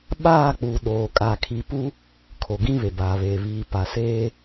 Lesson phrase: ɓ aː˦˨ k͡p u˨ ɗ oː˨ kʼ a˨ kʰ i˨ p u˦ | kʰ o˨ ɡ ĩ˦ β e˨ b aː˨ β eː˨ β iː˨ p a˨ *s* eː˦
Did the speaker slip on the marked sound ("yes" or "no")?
no